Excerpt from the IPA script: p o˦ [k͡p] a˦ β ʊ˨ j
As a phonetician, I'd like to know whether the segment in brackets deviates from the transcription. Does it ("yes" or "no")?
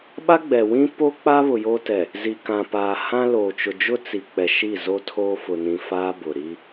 no